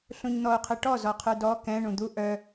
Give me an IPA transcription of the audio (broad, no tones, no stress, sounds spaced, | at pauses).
ɬ ũ ɲ n̪ ɔ u̯ qʰ ɨ ʈ ɔ z ɔ qʰ ʉ d ɔ k ɛ̃ ɳ ũ d̪ u ʔ œ